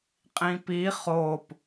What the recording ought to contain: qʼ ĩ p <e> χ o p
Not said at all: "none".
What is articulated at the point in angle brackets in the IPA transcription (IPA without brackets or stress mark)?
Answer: i